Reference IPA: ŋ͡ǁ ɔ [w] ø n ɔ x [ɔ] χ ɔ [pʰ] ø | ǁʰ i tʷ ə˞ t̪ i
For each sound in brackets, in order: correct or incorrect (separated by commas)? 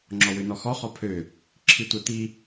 correct, correct, correct